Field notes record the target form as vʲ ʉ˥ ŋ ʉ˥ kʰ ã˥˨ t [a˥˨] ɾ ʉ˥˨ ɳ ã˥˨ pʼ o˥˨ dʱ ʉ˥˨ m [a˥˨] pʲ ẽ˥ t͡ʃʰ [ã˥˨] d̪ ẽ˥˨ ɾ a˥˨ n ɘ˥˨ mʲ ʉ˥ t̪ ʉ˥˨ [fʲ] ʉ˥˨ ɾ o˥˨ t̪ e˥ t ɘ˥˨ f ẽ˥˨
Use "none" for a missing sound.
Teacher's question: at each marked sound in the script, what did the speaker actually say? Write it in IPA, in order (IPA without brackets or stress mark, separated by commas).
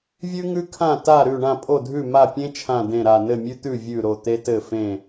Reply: a˥˨, a˥˨, ã˥˨, vʲ